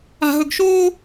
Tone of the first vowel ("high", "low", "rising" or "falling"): high